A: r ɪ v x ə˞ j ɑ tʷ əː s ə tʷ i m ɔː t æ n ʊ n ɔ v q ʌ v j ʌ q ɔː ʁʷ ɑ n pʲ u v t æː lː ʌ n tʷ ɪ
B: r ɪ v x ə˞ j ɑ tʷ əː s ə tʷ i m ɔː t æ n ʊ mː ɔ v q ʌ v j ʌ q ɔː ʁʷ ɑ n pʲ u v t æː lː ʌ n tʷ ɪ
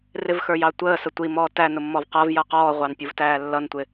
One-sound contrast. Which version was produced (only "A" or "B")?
B